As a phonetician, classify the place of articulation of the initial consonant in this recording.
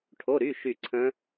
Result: retroflex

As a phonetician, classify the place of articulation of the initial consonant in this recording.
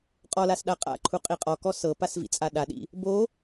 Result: uvular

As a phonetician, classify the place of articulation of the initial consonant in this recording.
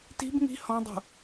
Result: alveolar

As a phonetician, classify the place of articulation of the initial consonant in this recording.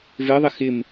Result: labial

